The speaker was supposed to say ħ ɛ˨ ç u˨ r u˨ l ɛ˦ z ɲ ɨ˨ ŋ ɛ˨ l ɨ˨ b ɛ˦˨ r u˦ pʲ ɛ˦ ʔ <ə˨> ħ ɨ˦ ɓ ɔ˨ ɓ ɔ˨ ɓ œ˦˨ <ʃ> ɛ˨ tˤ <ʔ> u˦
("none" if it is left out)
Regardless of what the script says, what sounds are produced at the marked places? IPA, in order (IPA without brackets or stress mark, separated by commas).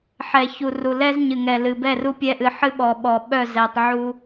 ɨ˨, z, ʕ